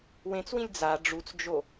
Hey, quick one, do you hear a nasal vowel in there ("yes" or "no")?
yes